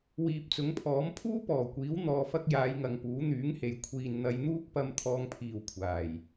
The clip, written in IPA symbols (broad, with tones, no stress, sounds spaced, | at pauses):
w iː˨ p̚ t͡s ʊ˨˥ ŋ pʰ ɔː˨˥ m pʰ uː˥ p ɔː˨˩ kʷ iː˨˥ w n̪ ɔː˧ f ɐ˥ k̚ j aː˨˧ j ŋ ɐ˨ ŋ p uː˨˥ n̪ yː˨˥ ŋ h e˨ j kʷʰ iː˨ n n̪ ɐ˨˧ j n̪ uː˥ k̚ p ɐ˧ m t̪ʰ ɔː˥ ŋ pʰ iː˧ w kʷʰ aː˨˩ j